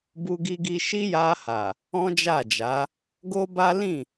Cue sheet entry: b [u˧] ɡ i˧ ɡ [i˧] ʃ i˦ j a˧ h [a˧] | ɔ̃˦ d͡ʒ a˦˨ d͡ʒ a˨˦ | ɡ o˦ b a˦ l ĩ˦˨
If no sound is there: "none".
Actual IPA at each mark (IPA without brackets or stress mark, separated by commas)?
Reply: u˧, i˧, a˨